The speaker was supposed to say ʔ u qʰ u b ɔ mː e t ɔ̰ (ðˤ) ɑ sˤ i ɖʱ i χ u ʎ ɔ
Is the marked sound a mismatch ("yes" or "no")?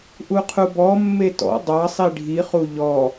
yes